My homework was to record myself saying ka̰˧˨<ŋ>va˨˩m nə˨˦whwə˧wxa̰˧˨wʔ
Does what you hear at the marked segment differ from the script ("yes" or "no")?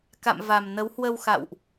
yes